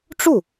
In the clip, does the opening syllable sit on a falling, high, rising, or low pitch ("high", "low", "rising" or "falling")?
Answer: falling